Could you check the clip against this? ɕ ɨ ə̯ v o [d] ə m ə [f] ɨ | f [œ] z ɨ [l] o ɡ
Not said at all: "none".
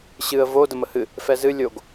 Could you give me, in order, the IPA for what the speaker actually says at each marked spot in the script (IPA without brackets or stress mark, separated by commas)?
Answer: d, h, ɛ, lʲ